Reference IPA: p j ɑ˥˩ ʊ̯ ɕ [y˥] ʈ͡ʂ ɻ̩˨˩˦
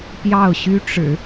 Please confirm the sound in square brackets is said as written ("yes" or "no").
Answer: yes